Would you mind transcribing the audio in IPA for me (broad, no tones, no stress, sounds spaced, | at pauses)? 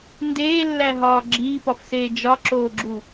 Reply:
n d eː lː æ ɦ ɒː ɡ͡ǁ iː p ɒ f s eː d͡ʒ ɒ ǁ oː ɡ͡ǁ u